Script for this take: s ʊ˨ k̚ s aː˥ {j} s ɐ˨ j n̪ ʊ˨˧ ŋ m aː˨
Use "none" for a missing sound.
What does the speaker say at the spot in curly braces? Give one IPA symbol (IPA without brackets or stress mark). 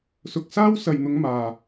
w